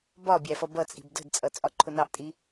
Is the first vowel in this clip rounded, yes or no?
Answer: yes